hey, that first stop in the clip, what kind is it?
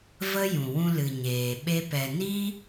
implosive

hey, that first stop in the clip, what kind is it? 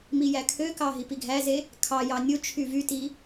aspirated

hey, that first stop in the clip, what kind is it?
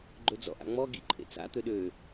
click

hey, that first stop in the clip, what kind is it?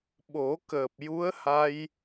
implosive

